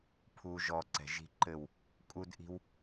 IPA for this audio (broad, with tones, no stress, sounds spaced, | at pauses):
pʰ u˧ ʒ ɔ˧ ǀ ɛ̤˨ ʒ i̤˧ ǃ ɘ˦˨ w | kʼ u˦ d ʔ i̤˦ w